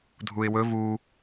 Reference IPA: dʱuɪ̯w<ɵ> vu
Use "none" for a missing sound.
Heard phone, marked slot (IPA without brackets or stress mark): ɵ